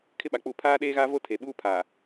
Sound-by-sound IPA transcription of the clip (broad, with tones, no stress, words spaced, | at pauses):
kʰɪ˦ɓa˨k͡pu˦˨ pʰaː˦ɗeː˦ɣa˦vo˦ tʰe˨ɓuː˦pʰaː˨